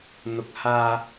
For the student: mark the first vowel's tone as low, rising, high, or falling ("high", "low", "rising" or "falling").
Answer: rising